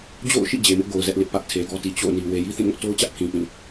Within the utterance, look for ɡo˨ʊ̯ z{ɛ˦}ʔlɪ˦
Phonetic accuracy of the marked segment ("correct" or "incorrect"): correct